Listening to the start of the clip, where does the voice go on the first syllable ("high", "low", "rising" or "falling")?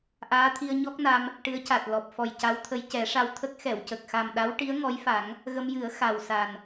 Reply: rising